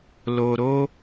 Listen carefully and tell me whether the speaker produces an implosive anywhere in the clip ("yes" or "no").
no